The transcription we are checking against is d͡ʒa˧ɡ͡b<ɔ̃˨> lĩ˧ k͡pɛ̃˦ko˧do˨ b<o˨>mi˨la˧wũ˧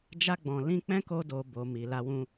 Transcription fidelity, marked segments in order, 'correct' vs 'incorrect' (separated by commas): correct, correct